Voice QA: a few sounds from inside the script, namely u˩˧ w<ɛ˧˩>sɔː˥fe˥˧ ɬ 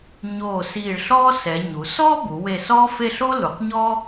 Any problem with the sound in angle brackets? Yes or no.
yes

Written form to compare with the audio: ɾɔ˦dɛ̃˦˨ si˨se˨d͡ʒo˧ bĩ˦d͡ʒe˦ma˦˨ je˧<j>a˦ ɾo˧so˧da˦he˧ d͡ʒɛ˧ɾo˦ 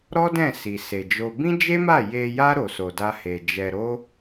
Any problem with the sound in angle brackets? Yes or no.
no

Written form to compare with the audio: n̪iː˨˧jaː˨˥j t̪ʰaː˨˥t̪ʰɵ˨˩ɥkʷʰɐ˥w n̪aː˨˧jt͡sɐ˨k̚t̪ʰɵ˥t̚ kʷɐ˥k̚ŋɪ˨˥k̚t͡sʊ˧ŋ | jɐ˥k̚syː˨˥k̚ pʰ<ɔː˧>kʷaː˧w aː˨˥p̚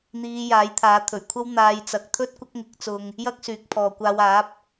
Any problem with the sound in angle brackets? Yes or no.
yes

